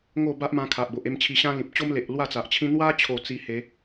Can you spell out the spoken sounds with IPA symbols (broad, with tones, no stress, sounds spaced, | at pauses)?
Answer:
ŋ o˥˧ b a˦ ʔ m ã˧ kʰ a˨ ʔ b o˨ ʔ e˥˧ m t͡ɕʰ i˧ ɕ ã˦ l ĩ˨ p̚ t͡ɕ o˦ m l e˨ ʔ l w a˥˧ t͡s a˨ ʔ t͡ɕʰ ĩ˦ n̪ w a˦ t͡ɕʰ o˨˩ t͡s i˧ h e˨˦